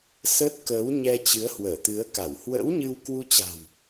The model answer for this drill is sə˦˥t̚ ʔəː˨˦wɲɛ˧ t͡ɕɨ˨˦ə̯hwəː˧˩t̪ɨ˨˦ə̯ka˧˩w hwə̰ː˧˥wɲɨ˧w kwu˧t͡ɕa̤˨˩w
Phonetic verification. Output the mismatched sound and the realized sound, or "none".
ʔ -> k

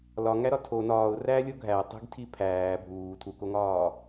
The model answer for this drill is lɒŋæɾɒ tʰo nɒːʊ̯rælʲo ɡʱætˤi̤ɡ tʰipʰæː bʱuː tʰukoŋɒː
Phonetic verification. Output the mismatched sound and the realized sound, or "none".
none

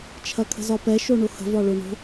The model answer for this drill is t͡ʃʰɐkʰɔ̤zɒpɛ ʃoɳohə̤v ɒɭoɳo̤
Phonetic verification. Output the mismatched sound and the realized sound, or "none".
ɔ̤ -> ə̤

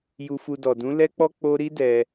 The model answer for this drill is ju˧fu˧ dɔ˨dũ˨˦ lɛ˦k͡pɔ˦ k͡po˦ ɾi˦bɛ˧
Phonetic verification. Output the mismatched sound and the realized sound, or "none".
b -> d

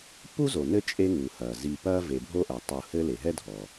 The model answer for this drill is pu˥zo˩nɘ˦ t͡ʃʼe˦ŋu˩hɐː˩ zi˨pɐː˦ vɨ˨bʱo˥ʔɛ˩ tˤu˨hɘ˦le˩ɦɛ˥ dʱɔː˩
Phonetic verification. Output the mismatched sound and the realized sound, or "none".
ɨ˨ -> e˨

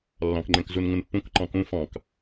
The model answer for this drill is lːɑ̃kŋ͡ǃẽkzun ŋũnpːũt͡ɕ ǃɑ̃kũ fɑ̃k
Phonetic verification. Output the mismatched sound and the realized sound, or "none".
t͡ɕ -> k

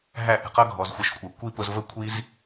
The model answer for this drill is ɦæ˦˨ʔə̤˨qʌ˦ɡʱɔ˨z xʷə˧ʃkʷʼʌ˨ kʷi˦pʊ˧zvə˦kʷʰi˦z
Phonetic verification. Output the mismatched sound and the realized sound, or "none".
none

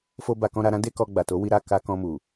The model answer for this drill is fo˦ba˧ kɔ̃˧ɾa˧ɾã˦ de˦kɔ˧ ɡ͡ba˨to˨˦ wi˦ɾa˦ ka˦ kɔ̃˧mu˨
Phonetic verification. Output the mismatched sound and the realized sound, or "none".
none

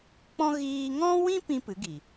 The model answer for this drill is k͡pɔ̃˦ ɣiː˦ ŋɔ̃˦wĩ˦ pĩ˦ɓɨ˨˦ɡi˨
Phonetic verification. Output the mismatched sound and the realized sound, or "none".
ɓ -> p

